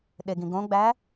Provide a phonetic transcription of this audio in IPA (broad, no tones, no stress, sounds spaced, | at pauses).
ɗ e ɡ ĩ ɡ õ ɡ͡b æ